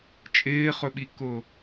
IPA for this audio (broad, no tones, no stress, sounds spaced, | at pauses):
t͡ʃʼ ɪː χ ɵ ɓ i k ʊː